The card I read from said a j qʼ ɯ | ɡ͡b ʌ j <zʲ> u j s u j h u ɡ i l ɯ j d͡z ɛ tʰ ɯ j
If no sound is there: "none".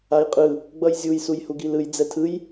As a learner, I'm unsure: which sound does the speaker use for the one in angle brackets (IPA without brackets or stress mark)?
zʲ